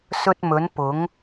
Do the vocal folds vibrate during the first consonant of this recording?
no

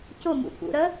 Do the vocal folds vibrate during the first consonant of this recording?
no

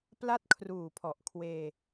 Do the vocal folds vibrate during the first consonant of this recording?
no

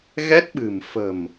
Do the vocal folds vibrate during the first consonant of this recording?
yes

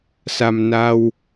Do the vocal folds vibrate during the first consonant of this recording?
no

